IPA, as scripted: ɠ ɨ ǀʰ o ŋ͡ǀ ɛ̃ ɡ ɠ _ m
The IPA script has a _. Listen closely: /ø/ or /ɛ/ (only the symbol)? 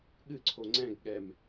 ɛ